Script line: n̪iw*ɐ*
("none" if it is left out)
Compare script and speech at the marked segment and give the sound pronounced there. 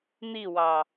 ɑ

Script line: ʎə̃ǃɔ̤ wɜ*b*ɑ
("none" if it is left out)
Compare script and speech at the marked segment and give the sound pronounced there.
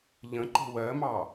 m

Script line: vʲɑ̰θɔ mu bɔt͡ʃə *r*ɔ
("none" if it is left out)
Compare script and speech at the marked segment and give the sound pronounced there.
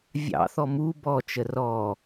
r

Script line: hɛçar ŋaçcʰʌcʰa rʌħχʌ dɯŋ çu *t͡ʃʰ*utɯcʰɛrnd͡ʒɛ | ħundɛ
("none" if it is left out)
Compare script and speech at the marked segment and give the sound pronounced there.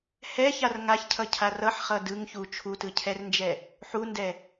t͡ʃʰ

